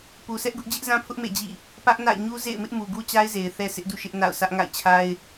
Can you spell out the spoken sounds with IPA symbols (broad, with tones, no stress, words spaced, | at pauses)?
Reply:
pu˨sʰɛ˦ʔɡʊ˦ʔ d͡ʑɪ˦ʔzã˦pʰʊ˦ʔ mḛ˦˨d͡ʑḭ˦˨ | pä˦ʔna̰˦˨ɪ̯ ɲu˦zḛ˦˨ɪ̯mɪ˦ʔ mu˨ɡu˦t͡ɕa˦ɪ̯ze˨ɪ̯ θɛ˦sɪ˦ʔdṵ˦˨ ʃɪ˦ʔna̰˦˨ʊ̯sä˦ʔ ŋa̰˦˨ɪ̯t͡ɕʰa˦ɪ̯